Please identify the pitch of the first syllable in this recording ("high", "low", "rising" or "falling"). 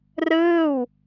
falling